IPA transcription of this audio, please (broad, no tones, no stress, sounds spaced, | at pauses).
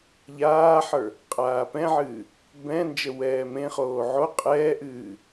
ʎ aː ħ ə˞ | qʼ aː p ɛ̃ ʕ ɨː | b ɛ̃ n d͡ʒ ə w ɛː m ẽ χ oː ʕ o qʼ ɛː ʔ ɨː